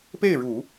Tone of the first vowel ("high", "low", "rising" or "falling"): falling